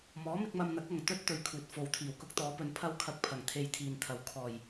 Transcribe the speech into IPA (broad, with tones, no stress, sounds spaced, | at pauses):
m ɔː˨˥ m ɪ˧ k̚ m ɐ˧ m n̪ ɐ˨˥ k̚ ɐ˨ ŋ t̪ ɵ˥ t̚ t̪ ɵ˨ ɥ kʰ uː˨ t̚ f o˨ w t̪ʰ iː˨˩ w k ʊ˥ k̚ t̪ ɔː˨˥ p ɵ˨˧ n pʰ ɐ˥ w kʰ ɐ˧ k̚ pʰ ɐ˨˩ ŋ t̪ʰ e˧ j t̪ʰ iː˨ n t̪ʰ ɐ˨ w kʰ ɔː˨˩ j